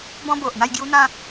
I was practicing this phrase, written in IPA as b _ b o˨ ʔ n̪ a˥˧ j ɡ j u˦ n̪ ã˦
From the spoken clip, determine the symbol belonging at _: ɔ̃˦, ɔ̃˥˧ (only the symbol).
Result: ɔ̃˦